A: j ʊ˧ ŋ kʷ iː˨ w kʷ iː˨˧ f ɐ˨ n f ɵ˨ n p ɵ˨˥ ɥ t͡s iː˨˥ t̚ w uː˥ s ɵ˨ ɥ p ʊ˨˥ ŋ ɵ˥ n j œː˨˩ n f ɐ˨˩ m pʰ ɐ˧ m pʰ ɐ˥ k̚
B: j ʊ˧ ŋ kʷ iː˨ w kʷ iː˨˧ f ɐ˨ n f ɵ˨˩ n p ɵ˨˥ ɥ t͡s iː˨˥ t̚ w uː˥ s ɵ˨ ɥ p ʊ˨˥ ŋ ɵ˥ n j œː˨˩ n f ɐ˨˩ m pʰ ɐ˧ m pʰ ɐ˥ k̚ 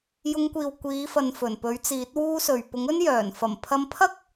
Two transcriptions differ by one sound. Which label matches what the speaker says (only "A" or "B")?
B